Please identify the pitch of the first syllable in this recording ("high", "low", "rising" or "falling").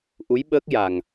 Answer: rising